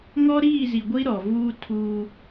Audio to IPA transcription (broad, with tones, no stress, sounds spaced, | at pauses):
ŋ ɔ˦ ɾ iː˦˨ z i˨ ɡʷ i˦ ɾ ɔ˨ v uː˦ tʰ uː˦